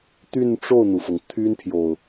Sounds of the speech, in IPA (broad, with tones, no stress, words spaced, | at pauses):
t̪y˥˧nʈ͡ʂo˥˩ʊ̯n̪u˩fɤ˩ŋ t̪ʰy˥npʰjo˨ʊ̯